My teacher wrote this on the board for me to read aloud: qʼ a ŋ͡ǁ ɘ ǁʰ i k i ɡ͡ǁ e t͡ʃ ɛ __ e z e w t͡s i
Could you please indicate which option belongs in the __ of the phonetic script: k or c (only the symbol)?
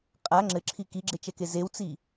k